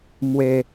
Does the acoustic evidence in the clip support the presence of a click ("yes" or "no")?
no